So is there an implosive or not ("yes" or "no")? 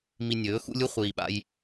yes